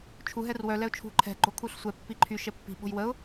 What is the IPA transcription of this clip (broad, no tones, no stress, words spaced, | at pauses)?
t͡ʃʰu ɦɛrwœ lɛʊ̯t͡ʃʰṳ ǃʰɛ̤ ɡ͡ǃokʰuɬsʷɛ pːiǃʰy ʃɛpːi̤ ɓo̤jwəʊ̯